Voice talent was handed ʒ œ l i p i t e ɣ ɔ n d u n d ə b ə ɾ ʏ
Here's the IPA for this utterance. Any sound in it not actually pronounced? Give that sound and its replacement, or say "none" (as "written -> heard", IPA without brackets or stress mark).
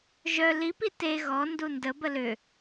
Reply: ɾ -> l